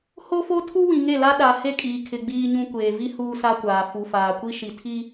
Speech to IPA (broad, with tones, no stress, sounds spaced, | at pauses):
h o˦ f o˦ tʰ u˦ w ĩ˨ ŋ e˦˨ l a˦ ɗ a˨ h e˦˨ kʼ iː˨ kʰ ɪ˨ ɡ͡b iː˦ ɲ ũ˦ kʷ eː˨ v i˦ h uː˦ s a˦ kʷ aː˨ f u˨ f aː˨ kʷ i˦ ʃ i˨ tʰ i˦